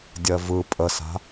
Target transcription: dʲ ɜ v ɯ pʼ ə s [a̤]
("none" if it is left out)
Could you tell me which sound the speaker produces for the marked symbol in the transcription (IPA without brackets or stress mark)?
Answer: a̤